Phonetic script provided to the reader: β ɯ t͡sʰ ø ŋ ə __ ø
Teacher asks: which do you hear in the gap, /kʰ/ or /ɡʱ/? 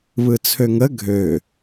ɡʱ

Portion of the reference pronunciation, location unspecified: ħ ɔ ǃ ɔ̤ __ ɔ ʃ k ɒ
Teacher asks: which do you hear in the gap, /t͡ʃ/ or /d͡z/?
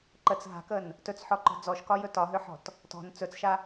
d͡z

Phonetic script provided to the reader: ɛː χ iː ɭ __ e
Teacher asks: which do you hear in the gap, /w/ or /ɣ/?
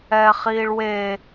w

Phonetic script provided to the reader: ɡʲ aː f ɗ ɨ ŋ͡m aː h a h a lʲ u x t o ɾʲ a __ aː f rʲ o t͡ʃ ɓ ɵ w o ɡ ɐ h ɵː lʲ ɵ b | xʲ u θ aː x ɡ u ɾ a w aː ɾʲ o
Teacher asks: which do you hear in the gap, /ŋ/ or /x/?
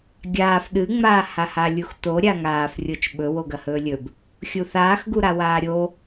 ŋ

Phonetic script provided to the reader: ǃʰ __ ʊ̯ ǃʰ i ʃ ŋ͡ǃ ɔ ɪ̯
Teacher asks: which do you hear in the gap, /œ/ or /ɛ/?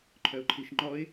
œ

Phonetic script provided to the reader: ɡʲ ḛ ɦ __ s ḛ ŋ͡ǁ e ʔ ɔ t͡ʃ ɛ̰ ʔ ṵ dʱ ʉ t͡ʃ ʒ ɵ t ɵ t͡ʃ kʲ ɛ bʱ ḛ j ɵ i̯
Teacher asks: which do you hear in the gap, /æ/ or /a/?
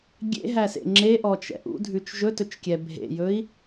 æ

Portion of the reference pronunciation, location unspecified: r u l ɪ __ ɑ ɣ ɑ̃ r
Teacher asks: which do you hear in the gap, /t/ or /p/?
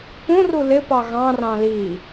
p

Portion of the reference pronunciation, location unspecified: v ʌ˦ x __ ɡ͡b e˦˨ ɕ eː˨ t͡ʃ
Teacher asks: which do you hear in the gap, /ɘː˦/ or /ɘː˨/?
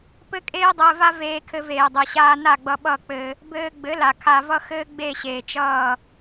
ɘː˦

